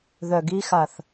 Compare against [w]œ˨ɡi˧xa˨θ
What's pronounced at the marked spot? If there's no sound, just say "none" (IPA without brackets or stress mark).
ð